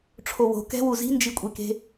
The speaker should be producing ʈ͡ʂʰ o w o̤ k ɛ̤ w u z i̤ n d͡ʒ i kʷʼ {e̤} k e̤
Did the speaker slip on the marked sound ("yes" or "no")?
yes